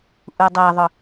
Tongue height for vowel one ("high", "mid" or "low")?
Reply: high